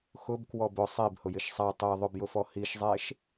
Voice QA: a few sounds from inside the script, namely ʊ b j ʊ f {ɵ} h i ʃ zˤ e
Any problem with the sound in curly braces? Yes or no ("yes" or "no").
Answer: yes